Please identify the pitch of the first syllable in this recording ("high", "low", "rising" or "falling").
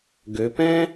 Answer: rising